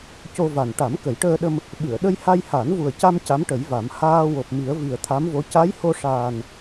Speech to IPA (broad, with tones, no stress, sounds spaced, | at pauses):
c o˧ v a˨˩ n ʈ a˨˩˦ m k ə˨˩˦ j ʈ əː˧ ɗ ə˧ m | ɓ ɨ˨˩˨ ə̯ ɗ ə˧ j h a˧ j h a˨˩˦ n v u˨˩ ə̯ c a˧ m c a˧˥ m ʈ ə˨˩˦ j v a˨˩˦ m h aː˧ w o˨˩ p̚ m i˨˩˦ ə̯ v i˨˩ ə̯ t̪ʰ a˧˥ m v o˧˥ c a˧˥ j h o˧ ʂ aː˨˩ n